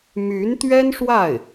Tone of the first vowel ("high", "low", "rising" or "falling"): rising